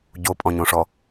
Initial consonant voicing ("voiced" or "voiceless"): voiced